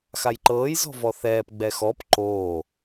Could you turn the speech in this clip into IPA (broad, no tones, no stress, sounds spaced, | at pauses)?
x a j ǃ ɤː j z ɔ̤ v ɔ θ ɛː p ɡ͡b ɛ x ɔ p ǃ oː